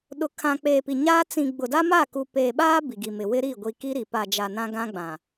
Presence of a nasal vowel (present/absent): present